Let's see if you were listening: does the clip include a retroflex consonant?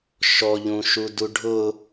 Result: yes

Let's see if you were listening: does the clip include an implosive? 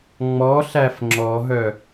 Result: no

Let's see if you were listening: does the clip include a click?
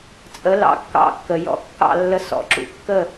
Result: yes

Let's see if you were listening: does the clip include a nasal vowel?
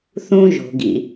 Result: yes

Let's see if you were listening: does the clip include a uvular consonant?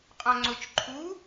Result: yes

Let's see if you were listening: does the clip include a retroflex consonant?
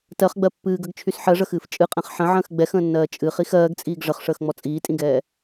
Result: yes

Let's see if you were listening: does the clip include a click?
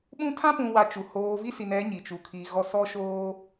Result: no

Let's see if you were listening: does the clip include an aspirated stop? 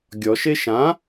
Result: no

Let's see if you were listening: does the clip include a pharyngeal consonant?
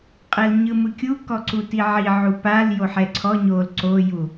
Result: yes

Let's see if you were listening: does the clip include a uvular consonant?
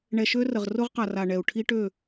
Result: yes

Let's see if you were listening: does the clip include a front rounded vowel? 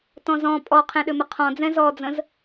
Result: yes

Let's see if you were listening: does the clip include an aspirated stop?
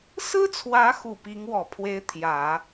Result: yes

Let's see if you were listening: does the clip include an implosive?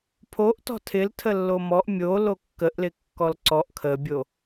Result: no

